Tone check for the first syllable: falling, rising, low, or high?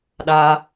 high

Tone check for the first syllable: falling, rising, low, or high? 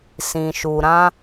low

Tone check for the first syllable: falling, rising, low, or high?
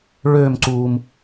falling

